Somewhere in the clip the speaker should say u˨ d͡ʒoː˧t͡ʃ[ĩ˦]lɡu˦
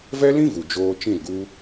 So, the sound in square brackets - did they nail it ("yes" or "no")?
no